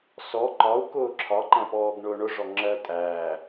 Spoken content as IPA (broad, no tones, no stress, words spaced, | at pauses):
sɔ ǃɒu̯ kʊːǁʰɒ ǃæ̃pɔːɡɳʊːɳʊ ʐɔŋ͡ǁɜ tʼæː